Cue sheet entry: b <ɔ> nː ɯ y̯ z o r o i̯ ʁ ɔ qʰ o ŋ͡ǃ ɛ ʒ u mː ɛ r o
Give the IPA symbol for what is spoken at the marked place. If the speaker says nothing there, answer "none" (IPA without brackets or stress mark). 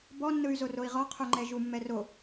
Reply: ɔ